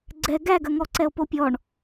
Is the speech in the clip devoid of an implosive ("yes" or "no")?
yes